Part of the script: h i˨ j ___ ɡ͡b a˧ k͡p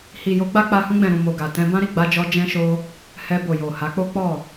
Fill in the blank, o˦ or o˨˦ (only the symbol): o˨˦